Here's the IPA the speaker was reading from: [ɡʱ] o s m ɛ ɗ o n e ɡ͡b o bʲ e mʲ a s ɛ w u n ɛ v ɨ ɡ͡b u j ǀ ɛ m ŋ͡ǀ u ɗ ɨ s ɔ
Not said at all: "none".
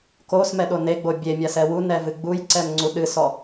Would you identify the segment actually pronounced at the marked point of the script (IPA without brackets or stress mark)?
k